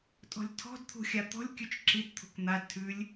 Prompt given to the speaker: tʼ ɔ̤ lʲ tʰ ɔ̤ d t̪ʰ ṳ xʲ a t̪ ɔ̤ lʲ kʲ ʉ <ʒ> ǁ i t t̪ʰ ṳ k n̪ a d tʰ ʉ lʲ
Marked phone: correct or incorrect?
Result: incorrect